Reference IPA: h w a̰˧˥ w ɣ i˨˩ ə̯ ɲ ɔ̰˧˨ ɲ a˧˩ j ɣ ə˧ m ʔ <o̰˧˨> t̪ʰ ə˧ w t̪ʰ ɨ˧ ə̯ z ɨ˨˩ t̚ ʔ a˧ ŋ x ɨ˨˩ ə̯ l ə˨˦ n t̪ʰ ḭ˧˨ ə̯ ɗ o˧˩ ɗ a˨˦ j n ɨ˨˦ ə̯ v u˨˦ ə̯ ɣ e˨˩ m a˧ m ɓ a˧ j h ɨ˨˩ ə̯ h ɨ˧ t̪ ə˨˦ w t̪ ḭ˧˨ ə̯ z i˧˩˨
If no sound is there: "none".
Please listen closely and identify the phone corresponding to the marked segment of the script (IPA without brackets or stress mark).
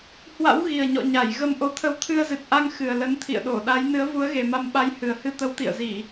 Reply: o˨˦